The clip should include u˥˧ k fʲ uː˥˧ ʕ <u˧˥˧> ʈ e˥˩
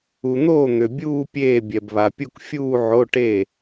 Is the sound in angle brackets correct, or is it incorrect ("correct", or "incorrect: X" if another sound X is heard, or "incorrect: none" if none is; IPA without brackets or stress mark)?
incorrect: o˧˥˧